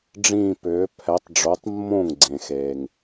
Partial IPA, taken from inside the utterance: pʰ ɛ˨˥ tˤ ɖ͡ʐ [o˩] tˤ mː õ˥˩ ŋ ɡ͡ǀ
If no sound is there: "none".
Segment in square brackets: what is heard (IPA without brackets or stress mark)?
o˨˥